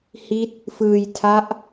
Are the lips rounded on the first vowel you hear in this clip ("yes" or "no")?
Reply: no